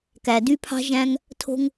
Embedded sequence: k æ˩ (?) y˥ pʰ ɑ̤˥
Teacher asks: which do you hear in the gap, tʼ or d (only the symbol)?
d